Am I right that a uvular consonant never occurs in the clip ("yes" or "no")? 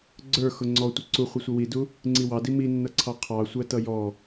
no